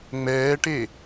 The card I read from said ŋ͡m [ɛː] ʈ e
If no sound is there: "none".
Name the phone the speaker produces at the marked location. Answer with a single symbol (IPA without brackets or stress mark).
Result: ɛː